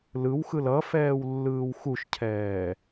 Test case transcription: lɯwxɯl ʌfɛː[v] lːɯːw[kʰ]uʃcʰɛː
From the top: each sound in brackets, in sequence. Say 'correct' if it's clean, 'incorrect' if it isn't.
incorrect: w, incorrect: x

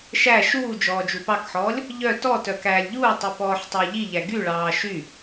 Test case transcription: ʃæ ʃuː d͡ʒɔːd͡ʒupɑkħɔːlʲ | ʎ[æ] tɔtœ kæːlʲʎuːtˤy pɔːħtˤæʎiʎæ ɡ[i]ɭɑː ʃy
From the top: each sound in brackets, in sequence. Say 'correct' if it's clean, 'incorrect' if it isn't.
incorrect: œ, incorrect: y

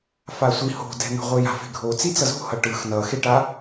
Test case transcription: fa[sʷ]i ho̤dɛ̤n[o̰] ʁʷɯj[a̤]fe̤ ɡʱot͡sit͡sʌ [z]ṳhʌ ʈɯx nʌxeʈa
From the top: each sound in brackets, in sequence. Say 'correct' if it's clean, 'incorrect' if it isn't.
correct, incorrect: o̤, correct, correct

